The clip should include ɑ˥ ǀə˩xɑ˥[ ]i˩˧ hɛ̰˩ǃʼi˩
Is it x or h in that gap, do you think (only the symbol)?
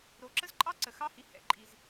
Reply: h